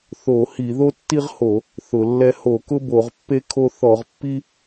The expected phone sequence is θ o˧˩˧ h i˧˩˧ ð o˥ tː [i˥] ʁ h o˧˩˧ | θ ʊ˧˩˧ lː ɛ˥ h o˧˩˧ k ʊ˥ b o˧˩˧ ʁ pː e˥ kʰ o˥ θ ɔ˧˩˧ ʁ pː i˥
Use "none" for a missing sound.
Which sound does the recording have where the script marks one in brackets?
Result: i˥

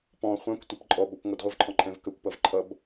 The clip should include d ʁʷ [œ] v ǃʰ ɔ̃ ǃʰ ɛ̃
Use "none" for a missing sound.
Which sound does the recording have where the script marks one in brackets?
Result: ə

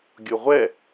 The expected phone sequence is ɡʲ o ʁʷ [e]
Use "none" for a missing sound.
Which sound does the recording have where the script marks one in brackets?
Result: ɛ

